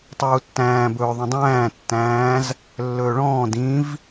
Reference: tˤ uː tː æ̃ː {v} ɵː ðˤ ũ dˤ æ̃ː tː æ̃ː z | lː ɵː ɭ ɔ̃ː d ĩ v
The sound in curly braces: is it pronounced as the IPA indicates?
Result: no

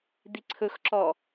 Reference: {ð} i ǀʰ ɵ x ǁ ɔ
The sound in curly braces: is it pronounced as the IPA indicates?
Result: no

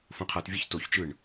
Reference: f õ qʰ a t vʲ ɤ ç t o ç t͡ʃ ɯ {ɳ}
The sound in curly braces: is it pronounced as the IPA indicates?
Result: yes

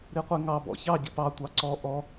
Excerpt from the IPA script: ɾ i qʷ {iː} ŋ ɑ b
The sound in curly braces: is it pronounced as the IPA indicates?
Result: no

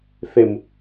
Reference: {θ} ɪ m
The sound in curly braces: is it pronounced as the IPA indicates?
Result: yes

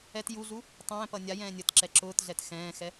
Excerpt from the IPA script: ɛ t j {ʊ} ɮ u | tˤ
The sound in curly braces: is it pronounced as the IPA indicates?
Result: no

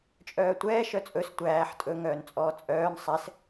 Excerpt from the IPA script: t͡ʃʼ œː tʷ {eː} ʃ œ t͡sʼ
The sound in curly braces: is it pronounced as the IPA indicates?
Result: no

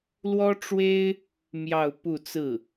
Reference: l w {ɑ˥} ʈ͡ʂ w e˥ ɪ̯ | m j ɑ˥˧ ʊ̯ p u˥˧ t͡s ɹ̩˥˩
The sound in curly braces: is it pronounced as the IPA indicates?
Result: no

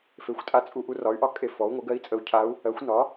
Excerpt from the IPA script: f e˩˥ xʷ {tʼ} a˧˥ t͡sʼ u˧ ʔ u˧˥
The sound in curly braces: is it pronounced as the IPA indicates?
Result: yes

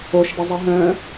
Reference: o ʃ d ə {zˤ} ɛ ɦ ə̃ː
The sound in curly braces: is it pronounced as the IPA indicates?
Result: yes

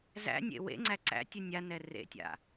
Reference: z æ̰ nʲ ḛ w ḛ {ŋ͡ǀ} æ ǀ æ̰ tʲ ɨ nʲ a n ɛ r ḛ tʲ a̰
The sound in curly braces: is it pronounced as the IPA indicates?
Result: yes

